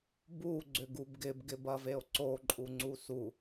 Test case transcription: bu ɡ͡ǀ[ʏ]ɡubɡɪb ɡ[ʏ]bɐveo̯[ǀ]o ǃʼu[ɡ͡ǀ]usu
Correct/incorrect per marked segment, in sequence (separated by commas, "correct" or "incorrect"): correct, incorrect, correct, incorrect